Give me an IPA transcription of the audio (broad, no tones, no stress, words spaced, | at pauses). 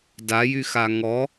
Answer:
dajyxa ŋɔ